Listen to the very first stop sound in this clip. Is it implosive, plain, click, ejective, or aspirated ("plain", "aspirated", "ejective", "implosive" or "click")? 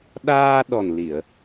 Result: implosive